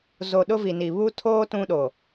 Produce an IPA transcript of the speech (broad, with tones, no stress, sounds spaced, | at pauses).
z o˨ ɗ ʊ˦ v i˨ n i˨ β u˦ tʰ oː˦ t ũ˦ ɗ o˨